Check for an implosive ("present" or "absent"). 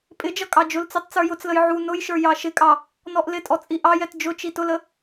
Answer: absent